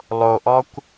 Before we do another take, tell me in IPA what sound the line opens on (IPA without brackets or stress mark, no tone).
lˠ